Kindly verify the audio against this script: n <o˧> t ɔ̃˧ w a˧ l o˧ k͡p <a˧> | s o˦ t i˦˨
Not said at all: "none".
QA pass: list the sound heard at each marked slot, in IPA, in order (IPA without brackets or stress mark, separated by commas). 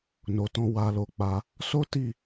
o˨, a˧